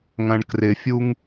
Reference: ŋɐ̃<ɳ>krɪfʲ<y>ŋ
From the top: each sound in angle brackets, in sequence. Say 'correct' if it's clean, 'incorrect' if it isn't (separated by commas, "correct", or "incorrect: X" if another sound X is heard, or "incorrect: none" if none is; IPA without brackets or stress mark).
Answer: correct, incorrect: u